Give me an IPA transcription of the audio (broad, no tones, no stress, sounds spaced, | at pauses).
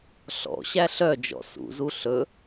ɬ ɔ̰ ɕ æ ɬ œ d͡ʒ ɔ̰ s ṵ z u ɬ ɵ